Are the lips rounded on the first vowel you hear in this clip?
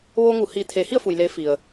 yes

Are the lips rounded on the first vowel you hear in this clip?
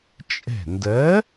no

